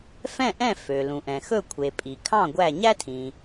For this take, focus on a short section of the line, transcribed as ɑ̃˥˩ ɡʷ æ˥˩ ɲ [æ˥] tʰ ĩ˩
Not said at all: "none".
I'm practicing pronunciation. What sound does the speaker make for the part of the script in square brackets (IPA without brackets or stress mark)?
æ˥